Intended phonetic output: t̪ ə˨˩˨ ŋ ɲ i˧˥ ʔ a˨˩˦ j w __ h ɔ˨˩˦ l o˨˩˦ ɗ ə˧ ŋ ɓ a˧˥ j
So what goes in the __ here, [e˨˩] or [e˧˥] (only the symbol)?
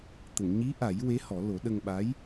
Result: e˧˥